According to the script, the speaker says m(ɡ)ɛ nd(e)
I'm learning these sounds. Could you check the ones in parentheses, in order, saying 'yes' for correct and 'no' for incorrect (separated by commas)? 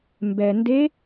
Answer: no, yes